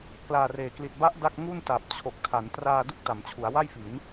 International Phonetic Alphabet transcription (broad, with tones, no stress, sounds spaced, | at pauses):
k l aː˧ r eː˨˩ k l i˨˩ t̚ b a˦˥ ʔ d a˥˩ k̚ ŋ u˥˩ n t a˨˩ p̚ t͡ɕʰ o˨˩ k̚ tʰ a˩˦ n t r aː˧ d u˥˩ k̚ t a˩˦ m t͡ɕʰ u˩˦ a̯ w a˥˩ j f i˩˦ n